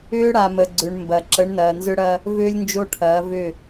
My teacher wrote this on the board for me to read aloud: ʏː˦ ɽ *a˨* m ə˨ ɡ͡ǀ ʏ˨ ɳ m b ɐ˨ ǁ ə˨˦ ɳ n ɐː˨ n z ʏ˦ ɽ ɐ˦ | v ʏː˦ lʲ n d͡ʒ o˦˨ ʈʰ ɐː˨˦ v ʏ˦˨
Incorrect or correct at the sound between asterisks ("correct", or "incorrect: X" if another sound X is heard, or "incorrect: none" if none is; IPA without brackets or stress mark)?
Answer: correct